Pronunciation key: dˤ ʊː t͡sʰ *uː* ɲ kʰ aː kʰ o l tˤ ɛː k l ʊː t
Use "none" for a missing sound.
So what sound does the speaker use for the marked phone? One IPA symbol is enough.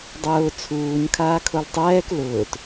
uː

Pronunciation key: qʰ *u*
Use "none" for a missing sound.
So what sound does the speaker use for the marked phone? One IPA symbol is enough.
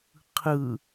ɯ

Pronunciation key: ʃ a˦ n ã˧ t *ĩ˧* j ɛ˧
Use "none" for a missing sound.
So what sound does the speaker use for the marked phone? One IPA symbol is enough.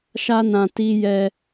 i˧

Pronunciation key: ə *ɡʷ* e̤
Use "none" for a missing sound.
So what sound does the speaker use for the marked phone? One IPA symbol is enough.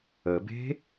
b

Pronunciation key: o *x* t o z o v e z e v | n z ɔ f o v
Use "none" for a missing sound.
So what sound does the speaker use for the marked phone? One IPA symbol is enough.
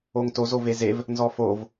ŋ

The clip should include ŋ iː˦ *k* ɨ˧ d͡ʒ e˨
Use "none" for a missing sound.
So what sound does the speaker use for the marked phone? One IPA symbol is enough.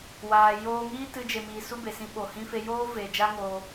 t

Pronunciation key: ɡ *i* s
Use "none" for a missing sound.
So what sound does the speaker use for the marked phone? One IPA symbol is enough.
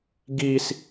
i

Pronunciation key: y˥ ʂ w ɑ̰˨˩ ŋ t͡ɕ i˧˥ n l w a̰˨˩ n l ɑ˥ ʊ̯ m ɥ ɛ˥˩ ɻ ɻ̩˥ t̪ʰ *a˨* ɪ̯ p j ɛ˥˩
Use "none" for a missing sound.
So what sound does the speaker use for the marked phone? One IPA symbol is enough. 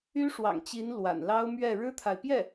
a˨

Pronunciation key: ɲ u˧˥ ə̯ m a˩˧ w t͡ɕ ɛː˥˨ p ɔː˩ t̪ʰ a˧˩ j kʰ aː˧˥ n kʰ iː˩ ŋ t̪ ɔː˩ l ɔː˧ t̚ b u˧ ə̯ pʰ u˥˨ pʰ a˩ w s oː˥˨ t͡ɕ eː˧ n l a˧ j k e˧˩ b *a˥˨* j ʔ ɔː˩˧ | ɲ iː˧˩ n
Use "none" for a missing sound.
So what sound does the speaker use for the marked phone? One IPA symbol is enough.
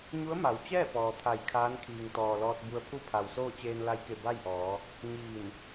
a˥˨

